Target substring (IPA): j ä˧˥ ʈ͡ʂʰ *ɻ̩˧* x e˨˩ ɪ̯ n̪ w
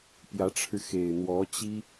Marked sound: correct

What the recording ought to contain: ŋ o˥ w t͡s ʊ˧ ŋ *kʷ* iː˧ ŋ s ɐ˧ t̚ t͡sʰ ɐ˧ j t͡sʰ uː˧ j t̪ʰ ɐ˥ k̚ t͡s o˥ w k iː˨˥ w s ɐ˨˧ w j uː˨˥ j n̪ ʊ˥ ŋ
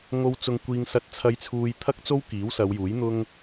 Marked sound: correct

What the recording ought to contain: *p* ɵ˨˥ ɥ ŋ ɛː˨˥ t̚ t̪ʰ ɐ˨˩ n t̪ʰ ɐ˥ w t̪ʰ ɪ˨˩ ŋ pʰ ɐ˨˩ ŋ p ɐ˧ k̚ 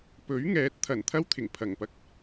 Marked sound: correct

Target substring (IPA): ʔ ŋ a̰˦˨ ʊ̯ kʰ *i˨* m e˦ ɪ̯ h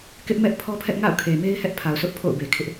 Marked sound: incorrect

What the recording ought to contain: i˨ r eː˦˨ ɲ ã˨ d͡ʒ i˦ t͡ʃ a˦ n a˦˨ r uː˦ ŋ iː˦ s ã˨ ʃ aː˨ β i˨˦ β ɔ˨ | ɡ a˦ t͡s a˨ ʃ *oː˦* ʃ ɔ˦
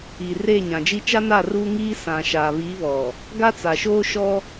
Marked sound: correct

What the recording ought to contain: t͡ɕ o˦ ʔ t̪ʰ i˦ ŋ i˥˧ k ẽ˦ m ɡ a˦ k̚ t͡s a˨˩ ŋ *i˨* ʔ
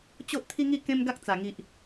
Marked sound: correct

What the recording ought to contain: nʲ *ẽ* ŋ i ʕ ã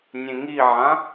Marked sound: correct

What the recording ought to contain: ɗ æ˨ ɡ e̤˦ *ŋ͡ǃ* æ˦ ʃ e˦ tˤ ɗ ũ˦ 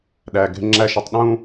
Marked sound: incorrect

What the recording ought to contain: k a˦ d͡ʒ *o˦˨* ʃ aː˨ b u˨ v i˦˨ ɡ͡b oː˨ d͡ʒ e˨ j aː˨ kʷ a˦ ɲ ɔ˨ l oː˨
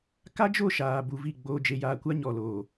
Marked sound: correct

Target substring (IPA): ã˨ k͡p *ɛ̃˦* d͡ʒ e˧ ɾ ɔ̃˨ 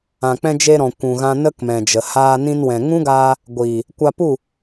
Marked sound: incorrect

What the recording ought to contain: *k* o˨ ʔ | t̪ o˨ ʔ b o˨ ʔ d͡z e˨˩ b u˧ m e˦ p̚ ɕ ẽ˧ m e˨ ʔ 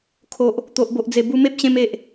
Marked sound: incorrect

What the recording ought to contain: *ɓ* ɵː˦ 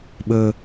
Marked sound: correct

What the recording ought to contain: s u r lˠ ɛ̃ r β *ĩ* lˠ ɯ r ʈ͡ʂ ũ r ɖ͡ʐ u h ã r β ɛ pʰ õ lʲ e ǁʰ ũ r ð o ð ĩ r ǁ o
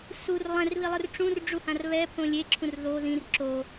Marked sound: incorrect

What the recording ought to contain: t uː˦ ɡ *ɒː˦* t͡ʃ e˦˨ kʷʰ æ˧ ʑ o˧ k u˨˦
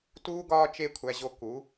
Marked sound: correct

